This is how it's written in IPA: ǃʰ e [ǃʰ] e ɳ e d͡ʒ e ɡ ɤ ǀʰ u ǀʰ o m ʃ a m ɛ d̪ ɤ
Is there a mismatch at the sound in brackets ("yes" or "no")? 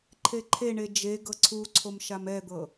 no